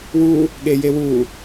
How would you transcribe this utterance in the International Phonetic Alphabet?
w u | ɠ e j e w u

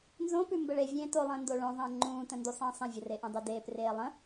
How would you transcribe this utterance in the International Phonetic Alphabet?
n z õ p ʉ m b ə ɭ e vʲ ẽː t o lˠ ə̃ː n d o ɭ õ ðˤ ə̃ː ŋ͡ǃ ũː t ə̃ n d u sˤ ə̃ː sˤ ə̃ vʲ ə r e ʔ ũ dˤ e d eː p r eː lˠ ə̃

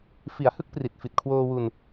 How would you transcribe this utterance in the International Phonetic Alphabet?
f i˩˦ a̯ h ɯ˦˥ k̚ p r i˨˩ t̚ f i˨˩ t̚ kʰ w oː˧ w u˧ n

